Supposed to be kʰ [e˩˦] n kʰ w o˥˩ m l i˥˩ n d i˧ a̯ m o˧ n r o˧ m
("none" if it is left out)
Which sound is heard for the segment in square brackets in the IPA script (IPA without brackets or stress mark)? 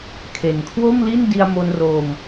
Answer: e˨˩